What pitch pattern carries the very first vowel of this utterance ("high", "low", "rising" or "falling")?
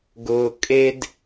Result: low